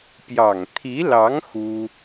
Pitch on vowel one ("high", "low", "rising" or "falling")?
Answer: low